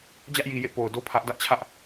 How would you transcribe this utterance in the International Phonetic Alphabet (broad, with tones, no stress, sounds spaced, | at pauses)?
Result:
d͡ʑ ä˦ ʔ j i˨ j ḛ˦˨ p o˨ ʊ̯ d o˦ pʰ ä˦ ʔ d ä˦ ʔ t͡ɕʰ ä˦ ʔ